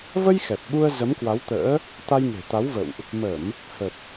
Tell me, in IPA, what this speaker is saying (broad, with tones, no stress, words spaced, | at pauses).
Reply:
və˧j xɛ˨˩p̚ɓu˧ə̯ zə˨˦mkwa˨˦wt̪ə̰ː˧˥ | t̪a˧jŋe̤˨˩t̪a˨˦wvə̰˧˨wʔ | mə˧˩˨m | hə˨˩p̚